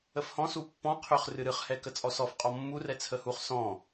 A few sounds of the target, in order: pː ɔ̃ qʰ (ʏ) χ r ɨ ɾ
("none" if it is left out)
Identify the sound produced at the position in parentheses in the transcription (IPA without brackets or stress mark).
ʏ